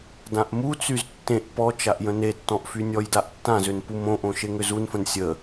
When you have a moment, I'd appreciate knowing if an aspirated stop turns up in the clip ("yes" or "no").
no